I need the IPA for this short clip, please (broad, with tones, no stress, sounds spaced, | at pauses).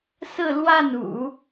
s ɹ̩˥˧ l w a˥˩ n ṵ˨˩˦